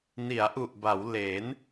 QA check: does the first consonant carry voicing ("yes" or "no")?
yes